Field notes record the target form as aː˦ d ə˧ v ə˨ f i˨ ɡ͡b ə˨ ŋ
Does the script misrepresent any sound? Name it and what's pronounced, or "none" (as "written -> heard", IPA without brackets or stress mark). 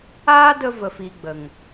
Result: none